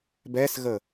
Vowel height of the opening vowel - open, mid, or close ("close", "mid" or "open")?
mid